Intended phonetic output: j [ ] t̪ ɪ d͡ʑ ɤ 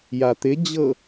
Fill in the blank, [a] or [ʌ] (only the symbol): a